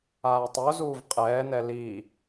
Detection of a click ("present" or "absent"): absent